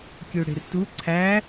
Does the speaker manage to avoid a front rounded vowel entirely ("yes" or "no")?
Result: no